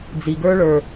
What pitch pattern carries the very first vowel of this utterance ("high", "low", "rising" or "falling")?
low